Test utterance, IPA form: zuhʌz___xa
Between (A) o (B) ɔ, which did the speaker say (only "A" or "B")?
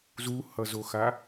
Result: A